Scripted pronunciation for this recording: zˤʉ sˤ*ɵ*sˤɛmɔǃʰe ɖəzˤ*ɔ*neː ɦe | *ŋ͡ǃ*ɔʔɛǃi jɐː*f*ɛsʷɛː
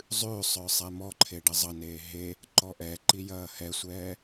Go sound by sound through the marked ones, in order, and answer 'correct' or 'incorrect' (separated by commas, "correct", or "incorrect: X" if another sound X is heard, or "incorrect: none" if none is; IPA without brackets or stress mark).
incorrect: œ, incorrect: ʌ, incorrect: ǃ, incorrect: h